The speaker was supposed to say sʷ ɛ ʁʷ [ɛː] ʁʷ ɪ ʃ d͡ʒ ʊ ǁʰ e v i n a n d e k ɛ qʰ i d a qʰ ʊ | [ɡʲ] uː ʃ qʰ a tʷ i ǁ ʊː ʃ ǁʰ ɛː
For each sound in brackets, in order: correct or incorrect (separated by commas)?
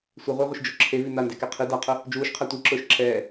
incorrect, incorrect